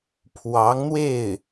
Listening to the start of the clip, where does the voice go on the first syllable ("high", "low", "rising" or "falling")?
rising